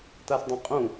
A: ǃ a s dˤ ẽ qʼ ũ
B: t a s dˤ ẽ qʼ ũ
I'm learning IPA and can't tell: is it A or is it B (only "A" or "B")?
B